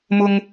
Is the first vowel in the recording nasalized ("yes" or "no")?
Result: no